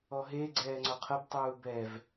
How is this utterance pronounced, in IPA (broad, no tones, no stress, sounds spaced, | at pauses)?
ɔ ɦ e ɡ͡ǀ ɛː ŋ͡ǀ ɔ qʰ ɤ b tˤ uː b ɛ v